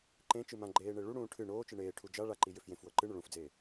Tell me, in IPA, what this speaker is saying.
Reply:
ǃẽt͡ʃɨ mãɡ͡ǃeːɳe ɭuɽũː ʈʰɨ ɳoːt͡ʃɨ ɳeːʈʰu d͡ʒa ɭaǃijʏf jẽfwɤ ǃɨɳʏ ɭũfd͡zeː

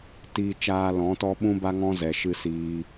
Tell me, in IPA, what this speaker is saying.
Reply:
tiː˧t͡ʃaː˧lɔ̃˨˦tɔ˦ ɓũ˦ba˦ŋɔ̃˦zɛ˨ ʃɨ˦siː˦

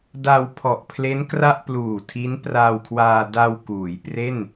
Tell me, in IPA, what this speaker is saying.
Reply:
da˧wpʰɔ˨˩ʔpʰle˦˥n kra˥˩ʔpluː˨˩tʰi˦˥n praː˧wkʰwaː˧ da˧w kuː˩˦j pre˥˩n

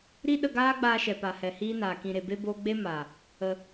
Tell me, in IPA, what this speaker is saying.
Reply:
ɾi˦ɗə˧ɡaː˦ɡ͡baː˧ ʃɛ˨pa˨hɛ˨ hiː˦naː˨kĩ˧ ɾe˨ be˦boː˦ ɡ͡be˦ma˨ | ə˧

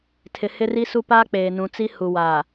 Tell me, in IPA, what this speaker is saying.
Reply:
tʰɪ˨hɪ˦ri˦su˦ paː˦k͡peː˨nũ˨t͡si˦ hu˨wa˨

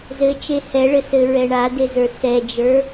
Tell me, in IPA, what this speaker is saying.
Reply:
zɘ t͡ʃehɛɭɘsɘ ɹɛɳadezə˞ sɛd͡ʒə˞

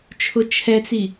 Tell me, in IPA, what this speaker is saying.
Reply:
t͡ʃʰʊt͡ʃʰɛt͡si

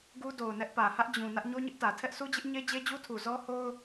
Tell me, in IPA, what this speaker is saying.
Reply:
ɡu˦do˨ʊ̯nɛ˦ʔ pä˨hä˦ʔ d͡ʑũ˨ nä˦ʔɲo˦ɲɪ˦ʔtä˨ tʰɛ˦ʔsʰu˦d͡ʑɪ˦ʔ ɲe˦d͡ʑe˦d͡ʑu˦tʰu˨ zɔ˦ho˦ʊ̯

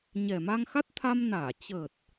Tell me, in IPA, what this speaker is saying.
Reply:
ɲɛ˨˩ma˧ŋ xa˦˥t̚t̪ʰa˧mnaː˧˩ t͡ɕə˨˩t̚

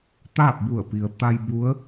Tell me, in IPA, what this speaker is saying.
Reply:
t̪aː˥˨p̚bu˧˩ə̯pi˩ə̯ t̪a˧j bu˧˥ə̯

